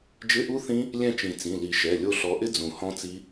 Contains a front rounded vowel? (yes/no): no